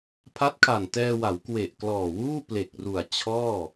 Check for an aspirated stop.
present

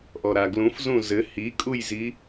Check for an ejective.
present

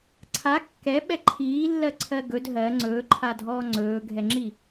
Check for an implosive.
present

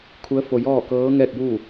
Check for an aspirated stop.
present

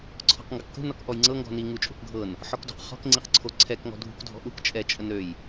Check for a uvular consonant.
present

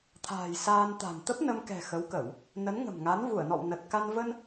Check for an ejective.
absent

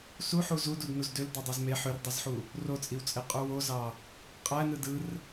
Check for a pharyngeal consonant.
present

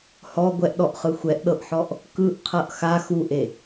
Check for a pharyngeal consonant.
present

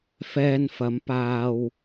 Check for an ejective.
absent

